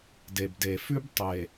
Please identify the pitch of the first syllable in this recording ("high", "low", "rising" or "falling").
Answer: low